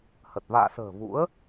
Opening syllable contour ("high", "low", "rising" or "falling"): low